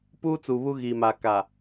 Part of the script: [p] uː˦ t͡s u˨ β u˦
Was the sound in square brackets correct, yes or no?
yes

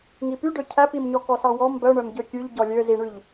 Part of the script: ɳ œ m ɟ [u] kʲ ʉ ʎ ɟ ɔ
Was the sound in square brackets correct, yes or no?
no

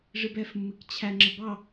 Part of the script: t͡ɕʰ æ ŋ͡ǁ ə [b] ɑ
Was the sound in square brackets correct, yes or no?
yes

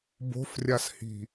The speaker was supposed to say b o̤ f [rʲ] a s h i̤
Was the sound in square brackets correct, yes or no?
yes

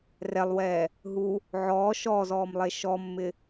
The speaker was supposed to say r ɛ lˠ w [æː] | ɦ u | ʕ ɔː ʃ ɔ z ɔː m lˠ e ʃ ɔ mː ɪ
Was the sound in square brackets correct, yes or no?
no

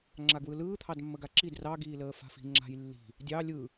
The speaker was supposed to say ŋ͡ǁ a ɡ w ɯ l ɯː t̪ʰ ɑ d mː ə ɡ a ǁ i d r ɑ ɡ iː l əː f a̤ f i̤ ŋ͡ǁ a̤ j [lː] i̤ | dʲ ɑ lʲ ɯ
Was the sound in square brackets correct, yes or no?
yes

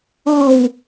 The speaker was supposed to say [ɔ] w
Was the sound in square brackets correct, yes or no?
yes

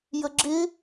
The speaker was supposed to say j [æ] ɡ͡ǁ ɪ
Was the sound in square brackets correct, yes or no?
no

